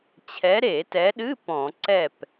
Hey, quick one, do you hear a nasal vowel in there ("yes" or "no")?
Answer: yes